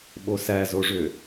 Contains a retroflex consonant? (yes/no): yes